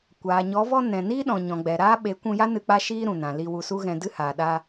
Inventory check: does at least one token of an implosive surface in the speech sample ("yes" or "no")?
yes